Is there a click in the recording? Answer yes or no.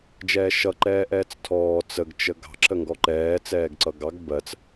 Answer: yes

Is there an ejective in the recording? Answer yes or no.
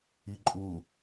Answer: yes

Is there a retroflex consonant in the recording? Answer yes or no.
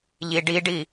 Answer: yes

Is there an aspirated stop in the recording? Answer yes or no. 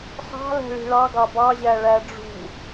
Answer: no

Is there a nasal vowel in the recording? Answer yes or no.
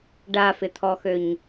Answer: no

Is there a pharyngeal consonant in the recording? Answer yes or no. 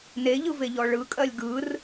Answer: no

